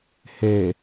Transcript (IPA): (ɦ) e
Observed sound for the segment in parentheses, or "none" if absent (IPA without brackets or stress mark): h